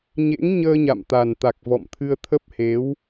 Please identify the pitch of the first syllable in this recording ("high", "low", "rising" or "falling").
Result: rising